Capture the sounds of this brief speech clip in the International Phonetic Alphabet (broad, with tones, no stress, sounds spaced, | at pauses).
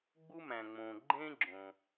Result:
ɡ͡b u˥ m æ̃˩ ŋ͡m õ˩ ɡ͡ǃ ẽ˥ ɡ͡ǁ õ˩